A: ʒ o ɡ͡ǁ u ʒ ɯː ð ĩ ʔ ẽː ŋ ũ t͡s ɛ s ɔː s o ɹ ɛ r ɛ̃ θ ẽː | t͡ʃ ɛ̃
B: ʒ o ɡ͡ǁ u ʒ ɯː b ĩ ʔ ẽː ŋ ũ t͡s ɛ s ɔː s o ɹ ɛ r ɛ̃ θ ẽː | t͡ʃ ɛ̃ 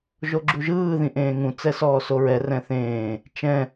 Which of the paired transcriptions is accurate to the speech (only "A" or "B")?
A